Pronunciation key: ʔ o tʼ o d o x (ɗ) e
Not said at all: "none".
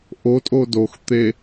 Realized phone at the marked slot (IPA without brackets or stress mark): t̪